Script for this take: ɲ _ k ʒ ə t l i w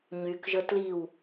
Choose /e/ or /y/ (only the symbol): y